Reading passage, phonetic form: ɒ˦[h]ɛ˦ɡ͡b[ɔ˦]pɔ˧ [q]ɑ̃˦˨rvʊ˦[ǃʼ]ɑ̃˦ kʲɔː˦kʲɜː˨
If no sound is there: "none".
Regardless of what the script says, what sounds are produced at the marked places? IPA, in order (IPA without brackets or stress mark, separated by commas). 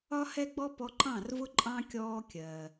h, ɔ˦, ǃ, ǃʼ